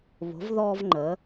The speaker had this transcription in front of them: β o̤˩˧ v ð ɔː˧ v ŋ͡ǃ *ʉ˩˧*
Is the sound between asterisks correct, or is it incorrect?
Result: incorrect